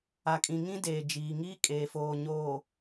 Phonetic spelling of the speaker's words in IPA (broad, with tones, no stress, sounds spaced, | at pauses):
a˨ kʼ ĩ˨ ŋ ĩ˦ d eː˨ d͡ʒ iː˨ ŋ iː˦ kʼ eː˨ f oː˨ ɲ oː˨